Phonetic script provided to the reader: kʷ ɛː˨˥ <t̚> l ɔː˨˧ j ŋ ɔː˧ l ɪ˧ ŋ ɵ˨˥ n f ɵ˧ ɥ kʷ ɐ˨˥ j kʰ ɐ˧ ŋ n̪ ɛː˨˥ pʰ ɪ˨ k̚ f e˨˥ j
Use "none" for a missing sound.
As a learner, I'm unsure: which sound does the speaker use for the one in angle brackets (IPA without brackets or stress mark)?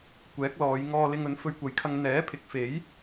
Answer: k̚